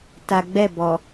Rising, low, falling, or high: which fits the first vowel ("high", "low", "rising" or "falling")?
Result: low